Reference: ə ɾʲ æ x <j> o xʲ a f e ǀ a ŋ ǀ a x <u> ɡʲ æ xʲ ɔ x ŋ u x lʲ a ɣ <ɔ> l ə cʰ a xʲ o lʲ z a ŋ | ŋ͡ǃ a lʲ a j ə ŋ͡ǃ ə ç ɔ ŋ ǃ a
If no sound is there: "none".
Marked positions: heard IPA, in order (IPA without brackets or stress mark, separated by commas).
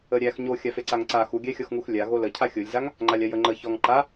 ɲ, u, o